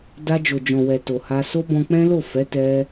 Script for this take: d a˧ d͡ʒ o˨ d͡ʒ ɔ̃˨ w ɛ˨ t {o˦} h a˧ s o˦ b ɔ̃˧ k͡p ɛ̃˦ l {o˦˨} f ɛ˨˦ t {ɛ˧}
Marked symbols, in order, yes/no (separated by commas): no, yes, yes